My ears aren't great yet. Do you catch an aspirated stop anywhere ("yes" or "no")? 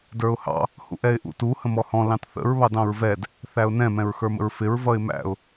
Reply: no